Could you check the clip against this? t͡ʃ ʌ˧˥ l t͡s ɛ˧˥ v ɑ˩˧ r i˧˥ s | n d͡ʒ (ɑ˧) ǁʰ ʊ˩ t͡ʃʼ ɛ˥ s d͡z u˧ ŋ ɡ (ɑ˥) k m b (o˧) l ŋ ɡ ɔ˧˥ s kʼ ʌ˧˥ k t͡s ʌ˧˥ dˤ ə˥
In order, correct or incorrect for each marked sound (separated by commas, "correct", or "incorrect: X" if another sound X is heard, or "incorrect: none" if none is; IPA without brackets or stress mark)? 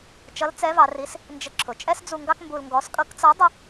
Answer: incorrect: ə˧, correct, incorrect: u˧